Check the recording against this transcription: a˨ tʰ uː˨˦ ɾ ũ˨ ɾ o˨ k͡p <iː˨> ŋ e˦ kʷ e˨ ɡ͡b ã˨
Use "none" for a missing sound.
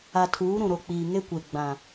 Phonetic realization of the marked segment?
iː˨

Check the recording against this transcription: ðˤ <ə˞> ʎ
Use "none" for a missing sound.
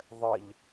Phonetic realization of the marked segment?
ə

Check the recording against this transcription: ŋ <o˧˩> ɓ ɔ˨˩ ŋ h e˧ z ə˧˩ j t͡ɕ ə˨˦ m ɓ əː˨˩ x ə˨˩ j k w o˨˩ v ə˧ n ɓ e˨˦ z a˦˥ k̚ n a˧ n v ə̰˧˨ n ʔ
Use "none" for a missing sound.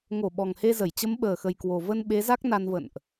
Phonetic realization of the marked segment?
o˧˩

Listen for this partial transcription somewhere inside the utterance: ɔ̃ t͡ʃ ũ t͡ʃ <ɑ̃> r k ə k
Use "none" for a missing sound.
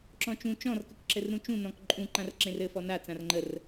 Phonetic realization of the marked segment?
ɔ̃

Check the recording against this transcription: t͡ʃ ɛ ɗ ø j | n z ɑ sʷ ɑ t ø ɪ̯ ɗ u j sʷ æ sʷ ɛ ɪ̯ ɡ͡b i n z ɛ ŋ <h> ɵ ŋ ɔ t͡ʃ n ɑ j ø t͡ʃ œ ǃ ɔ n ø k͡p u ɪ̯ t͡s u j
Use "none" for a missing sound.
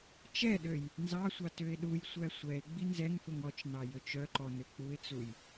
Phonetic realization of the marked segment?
f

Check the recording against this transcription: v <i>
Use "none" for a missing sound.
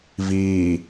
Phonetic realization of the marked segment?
iː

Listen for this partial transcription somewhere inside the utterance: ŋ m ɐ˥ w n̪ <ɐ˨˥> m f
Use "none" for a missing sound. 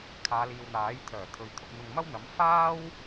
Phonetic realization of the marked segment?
ɐ˨˥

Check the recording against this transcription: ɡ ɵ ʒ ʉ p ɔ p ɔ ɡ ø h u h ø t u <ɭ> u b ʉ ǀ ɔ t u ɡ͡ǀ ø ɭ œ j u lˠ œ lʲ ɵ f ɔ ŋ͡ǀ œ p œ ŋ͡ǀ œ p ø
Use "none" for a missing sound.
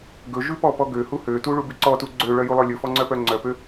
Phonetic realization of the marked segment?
ɭ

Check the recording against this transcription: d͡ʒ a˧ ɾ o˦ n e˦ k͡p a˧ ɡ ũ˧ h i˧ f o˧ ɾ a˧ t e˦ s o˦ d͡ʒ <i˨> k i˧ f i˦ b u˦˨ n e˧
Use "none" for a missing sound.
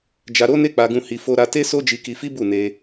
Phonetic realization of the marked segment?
i˧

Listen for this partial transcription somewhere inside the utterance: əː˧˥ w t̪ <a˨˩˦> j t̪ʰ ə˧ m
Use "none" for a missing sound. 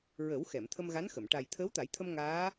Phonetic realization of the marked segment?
a˨˩˦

